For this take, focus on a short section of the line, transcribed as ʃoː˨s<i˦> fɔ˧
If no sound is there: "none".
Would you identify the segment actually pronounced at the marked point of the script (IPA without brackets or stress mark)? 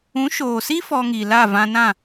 i˦